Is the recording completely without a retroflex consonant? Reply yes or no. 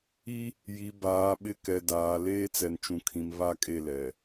yes